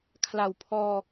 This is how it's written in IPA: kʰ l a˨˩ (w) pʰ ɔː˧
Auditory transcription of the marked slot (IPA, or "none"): w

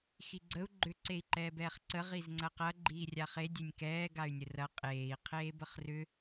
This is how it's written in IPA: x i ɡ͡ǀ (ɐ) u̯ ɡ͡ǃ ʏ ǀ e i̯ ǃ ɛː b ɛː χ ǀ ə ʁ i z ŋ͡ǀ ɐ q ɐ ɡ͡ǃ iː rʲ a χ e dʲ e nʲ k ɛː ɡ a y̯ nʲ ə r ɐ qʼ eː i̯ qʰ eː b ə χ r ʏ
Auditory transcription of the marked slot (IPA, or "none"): ə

